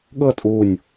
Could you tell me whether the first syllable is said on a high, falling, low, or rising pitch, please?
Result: falling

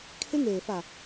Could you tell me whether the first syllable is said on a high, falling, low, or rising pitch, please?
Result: high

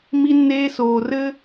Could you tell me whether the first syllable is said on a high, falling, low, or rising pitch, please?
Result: high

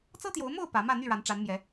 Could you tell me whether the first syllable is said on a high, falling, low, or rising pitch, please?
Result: high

